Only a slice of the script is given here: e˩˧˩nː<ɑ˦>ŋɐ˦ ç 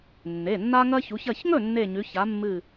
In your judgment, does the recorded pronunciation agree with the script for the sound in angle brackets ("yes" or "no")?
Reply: no